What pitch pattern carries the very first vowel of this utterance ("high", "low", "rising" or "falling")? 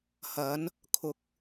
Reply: rising